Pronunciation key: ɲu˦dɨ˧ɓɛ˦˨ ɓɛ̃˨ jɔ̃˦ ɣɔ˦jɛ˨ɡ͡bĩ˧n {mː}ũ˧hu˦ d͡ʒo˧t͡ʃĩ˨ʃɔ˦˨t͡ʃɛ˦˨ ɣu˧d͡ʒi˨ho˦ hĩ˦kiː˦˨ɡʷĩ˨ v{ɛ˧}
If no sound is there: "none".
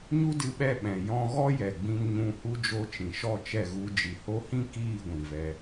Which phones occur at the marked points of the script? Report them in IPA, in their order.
ɲ, ɛ˧

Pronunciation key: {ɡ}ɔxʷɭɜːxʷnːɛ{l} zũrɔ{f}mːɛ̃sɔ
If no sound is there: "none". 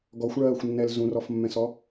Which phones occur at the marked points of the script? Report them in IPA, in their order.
ɡ, l, f

